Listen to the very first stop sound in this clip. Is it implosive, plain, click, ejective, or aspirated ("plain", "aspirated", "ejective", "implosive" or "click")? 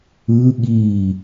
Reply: implosive